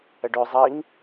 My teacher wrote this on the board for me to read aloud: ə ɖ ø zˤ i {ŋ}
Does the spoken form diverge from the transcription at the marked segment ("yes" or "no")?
no